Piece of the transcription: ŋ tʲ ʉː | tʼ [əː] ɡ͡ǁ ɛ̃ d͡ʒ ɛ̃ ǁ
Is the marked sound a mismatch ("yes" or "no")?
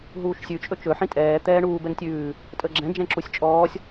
no